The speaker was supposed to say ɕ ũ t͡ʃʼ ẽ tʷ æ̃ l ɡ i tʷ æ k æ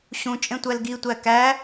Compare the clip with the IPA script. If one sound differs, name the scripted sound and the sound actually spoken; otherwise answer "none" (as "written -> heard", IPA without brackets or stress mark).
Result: æ̃ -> æ